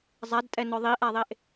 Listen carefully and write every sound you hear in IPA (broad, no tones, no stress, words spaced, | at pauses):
zˤadtʼɛnɔ ðˤiʔaðˤeʔ